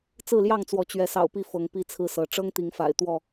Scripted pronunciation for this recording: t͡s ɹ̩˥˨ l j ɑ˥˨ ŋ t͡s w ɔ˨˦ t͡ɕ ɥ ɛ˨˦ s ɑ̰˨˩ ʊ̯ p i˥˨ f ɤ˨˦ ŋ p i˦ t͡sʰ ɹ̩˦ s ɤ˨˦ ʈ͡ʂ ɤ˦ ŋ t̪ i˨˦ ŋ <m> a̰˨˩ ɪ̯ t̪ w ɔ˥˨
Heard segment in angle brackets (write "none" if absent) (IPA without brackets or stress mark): f